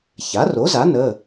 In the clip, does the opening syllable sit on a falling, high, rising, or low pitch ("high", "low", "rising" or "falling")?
rising